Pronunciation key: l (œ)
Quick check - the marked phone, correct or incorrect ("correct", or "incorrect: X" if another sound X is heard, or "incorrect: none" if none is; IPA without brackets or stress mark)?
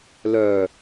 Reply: correct